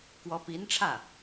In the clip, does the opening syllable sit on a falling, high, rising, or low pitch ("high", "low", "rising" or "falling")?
rising